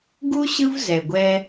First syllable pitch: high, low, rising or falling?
high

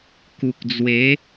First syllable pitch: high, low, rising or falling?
low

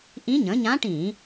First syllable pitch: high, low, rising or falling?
rising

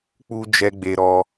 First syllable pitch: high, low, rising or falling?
high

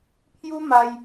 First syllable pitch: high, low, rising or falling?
high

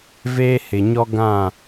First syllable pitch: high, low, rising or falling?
high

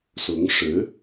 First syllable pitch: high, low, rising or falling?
rising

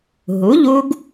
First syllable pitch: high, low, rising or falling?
rising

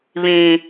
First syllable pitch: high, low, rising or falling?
low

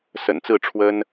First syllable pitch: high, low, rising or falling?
low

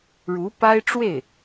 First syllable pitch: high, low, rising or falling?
rising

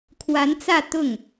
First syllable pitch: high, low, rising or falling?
rising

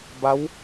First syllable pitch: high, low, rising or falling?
rising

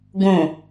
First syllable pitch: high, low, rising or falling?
low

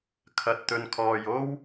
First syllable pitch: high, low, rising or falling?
low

